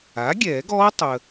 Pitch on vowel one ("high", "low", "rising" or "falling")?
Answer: rising